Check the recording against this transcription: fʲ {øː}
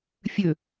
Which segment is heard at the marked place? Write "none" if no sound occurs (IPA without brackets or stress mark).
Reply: ø